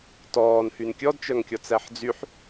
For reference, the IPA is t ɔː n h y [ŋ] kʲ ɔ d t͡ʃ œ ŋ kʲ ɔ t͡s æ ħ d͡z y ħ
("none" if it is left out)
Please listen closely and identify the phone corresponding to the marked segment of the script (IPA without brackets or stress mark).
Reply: n